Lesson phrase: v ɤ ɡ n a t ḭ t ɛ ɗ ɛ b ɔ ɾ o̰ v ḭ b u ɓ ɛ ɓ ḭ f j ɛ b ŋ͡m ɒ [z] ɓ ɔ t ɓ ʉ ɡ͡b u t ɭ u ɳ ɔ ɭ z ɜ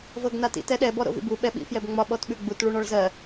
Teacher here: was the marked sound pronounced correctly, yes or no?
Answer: no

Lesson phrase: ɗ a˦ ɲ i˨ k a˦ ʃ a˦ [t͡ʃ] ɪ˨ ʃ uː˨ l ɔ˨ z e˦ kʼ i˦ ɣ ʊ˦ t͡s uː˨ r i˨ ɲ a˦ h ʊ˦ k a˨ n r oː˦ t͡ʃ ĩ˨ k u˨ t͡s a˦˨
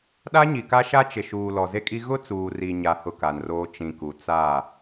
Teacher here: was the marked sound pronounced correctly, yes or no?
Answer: yes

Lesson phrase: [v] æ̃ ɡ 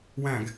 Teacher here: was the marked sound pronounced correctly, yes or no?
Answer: no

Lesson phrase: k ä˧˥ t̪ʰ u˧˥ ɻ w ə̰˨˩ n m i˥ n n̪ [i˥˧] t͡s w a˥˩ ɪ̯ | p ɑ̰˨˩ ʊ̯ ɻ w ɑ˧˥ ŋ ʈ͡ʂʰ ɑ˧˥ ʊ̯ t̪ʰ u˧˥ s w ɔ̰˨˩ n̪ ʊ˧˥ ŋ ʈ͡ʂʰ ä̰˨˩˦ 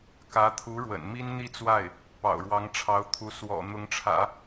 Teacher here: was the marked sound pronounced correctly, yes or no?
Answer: yes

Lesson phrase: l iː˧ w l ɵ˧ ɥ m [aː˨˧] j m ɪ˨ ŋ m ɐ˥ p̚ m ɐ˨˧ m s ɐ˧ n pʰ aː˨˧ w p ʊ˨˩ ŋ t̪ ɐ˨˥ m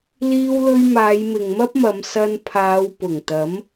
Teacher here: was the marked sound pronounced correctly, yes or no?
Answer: yes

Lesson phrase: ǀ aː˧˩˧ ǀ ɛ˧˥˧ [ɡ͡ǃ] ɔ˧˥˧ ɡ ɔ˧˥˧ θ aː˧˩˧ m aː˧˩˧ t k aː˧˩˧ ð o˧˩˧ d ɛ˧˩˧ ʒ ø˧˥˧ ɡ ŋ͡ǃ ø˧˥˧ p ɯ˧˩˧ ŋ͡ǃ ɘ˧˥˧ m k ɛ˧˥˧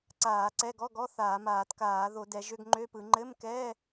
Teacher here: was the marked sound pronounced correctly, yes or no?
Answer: no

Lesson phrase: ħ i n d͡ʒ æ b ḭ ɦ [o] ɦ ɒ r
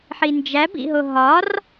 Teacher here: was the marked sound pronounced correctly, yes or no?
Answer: yes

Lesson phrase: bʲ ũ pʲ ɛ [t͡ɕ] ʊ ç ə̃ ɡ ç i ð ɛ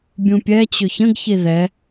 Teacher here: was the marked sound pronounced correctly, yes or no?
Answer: yes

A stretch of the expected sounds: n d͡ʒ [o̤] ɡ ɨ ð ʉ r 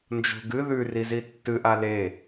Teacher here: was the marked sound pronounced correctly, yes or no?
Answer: yes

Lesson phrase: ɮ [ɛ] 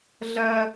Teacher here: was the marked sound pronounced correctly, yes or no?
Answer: no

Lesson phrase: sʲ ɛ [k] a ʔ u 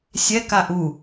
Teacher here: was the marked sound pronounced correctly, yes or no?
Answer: yes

